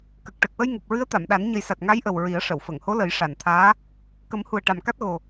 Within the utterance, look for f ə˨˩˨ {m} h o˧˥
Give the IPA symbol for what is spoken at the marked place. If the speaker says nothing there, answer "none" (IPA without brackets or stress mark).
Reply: ŋ